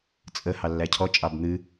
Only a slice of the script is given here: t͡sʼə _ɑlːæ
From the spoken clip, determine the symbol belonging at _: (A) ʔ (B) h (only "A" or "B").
B